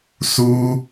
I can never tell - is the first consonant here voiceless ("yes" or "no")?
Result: yes